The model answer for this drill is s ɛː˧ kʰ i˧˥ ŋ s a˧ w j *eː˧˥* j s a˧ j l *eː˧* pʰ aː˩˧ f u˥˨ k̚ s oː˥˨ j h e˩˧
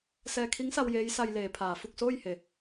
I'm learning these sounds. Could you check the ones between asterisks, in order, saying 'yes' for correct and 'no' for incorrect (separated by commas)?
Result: yes, no